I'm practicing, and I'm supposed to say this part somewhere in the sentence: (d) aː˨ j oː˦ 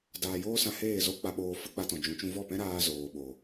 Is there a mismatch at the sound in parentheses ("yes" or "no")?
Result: no